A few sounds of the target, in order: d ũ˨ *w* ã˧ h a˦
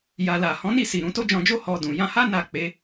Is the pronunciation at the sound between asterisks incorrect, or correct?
incorrect: j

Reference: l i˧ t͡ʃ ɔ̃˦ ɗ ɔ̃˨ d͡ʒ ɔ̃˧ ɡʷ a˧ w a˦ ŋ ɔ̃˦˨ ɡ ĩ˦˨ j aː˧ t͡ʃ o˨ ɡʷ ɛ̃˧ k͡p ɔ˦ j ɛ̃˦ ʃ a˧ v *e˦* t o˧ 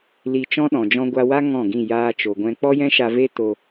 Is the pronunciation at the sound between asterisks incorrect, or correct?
correct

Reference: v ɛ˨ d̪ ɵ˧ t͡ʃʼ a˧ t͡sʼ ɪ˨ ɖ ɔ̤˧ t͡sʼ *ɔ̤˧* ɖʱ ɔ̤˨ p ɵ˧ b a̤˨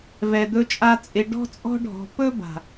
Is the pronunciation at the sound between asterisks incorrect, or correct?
correct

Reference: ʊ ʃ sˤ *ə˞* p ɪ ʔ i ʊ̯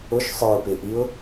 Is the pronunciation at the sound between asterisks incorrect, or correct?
correct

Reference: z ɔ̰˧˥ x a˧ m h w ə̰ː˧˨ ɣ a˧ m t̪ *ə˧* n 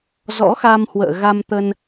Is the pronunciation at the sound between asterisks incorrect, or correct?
correct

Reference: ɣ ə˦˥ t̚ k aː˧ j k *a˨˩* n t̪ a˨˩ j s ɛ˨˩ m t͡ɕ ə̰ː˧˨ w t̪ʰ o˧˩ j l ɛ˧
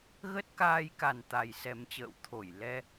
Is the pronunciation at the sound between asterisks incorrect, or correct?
correct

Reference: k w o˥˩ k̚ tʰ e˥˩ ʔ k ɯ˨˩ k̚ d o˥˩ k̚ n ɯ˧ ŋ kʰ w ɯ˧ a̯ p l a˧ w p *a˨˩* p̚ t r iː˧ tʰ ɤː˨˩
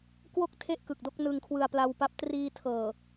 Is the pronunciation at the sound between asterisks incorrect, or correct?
incorrect: a˦˥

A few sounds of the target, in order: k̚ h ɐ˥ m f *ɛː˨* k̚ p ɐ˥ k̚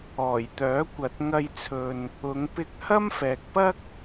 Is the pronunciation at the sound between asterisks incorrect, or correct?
correct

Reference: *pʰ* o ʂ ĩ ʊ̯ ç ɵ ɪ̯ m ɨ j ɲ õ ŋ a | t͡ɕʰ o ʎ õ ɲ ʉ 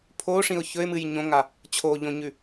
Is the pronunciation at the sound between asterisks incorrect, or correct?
correct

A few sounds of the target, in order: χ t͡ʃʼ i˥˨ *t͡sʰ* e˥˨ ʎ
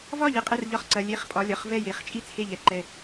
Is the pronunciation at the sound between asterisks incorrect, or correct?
correct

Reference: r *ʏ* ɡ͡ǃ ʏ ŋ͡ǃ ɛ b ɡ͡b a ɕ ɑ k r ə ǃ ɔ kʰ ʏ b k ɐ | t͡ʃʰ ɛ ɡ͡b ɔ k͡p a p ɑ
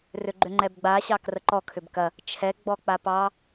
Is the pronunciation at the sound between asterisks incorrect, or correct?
correct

